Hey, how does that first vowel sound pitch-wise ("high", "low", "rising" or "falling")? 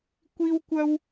high